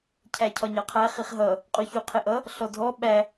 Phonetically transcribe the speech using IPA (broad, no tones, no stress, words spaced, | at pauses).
cʰæcʰɒɲɑqʰæ χiχɦʌ | qʼuçuqʰɪʔʌ | ɬɔdʱɔ ɓæ